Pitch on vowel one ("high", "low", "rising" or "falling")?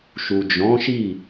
low